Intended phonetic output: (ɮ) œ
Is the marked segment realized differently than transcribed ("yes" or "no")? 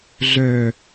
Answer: no